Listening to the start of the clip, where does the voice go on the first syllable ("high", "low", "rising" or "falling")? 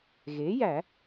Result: rising